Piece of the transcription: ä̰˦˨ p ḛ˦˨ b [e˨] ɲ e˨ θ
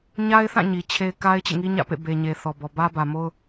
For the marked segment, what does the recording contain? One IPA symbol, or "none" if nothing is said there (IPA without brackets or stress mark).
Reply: e˨